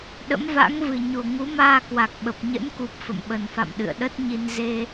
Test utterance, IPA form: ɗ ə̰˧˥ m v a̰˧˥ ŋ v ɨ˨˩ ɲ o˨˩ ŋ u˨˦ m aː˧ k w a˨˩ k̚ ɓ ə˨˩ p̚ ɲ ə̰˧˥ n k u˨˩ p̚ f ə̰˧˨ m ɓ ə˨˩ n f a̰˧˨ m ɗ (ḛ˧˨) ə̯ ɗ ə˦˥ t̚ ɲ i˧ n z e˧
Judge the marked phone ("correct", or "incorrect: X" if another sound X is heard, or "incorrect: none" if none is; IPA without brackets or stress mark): incorrect: ɨ̰˧˨